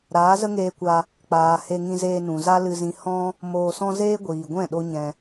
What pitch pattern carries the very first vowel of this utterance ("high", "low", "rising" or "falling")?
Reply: rising